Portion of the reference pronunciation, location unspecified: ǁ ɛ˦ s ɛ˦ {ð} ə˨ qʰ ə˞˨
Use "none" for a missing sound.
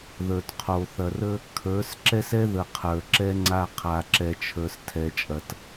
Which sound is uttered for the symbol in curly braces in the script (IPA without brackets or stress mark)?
ð